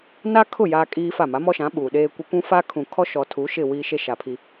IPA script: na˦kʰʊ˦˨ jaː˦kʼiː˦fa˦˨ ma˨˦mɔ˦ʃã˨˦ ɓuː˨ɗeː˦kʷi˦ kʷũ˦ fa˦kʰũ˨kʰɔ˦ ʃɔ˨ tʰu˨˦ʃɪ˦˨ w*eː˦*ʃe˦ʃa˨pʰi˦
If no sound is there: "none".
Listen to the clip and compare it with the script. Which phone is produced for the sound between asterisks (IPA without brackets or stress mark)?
iː˦